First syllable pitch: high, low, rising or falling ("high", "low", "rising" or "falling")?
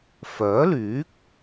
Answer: rising